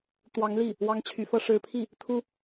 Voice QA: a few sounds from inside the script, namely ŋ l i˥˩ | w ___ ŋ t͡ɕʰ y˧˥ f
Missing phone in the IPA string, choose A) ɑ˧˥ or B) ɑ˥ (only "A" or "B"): B